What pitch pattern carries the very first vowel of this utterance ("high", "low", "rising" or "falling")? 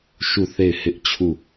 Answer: falling